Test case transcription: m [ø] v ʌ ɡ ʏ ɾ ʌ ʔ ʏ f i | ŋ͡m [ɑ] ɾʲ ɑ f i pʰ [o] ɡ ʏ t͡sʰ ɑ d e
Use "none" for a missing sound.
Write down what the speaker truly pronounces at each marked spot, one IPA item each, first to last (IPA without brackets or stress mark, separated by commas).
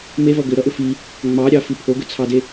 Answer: e, ɑ, o